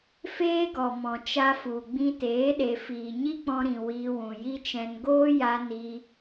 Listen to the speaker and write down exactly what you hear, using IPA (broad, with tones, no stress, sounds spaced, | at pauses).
f eː˦ ɡ ɔ˨ m ɔ̃˨ t͡ʃ a˧ f u˨ ɡ͡b ĩ˧ t eː˨˦ ɗ e˨ f iː˨ ɲ i˦ k͡p ɔ̃˧ ɾ ĩ˨ w iː˧ w ũ˨ j i˦ t͡ʃ ɛ̃˧ n ɡ oː˦ j a˧ n i˧